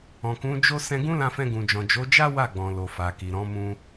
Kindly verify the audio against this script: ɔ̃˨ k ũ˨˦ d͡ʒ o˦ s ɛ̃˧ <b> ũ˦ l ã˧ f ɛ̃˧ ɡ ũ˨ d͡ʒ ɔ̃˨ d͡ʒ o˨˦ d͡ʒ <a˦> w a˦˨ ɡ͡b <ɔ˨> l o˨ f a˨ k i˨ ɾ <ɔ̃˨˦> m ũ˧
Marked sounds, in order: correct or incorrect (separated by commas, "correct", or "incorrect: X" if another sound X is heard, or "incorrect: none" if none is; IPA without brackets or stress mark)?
incorrect: ɡ, correct, incorrect: ɔ̃˨, correct